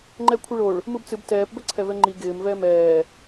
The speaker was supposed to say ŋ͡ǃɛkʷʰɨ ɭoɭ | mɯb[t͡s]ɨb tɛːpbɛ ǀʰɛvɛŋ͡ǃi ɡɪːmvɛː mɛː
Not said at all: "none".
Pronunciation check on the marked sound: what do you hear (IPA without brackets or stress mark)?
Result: t͡s